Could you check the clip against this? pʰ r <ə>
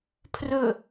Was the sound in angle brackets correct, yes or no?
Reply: no